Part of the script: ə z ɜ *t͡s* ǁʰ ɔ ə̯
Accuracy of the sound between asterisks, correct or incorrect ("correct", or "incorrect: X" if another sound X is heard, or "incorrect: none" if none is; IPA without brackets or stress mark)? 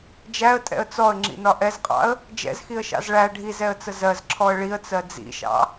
incorrect: z